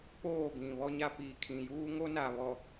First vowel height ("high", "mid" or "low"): mid